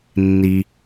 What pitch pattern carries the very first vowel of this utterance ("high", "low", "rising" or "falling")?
low